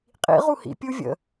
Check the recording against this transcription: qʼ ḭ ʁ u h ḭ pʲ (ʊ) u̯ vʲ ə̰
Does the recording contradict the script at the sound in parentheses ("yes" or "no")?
yes